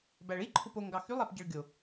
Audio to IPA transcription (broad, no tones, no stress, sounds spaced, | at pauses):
b æ ɭ i ǃʰ u p o ŋ ɡ ɑ x y lˠ æ p ɟ e ɭ ɡʲ o